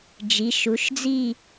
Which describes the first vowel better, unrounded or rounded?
unrounded